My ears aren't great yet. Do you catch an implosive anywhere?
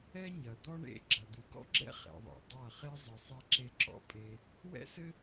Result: no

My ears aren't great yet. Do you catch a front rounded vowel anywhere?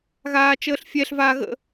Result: no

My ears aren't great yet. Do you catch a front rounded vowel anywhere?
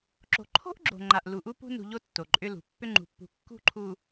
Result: yes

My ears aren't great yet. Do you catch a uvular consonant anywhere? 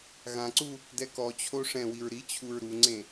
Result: no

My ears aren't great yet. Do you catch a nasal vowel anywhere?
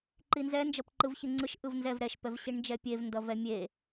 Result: no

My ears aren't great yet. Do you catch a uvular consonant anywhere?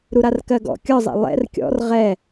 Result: yes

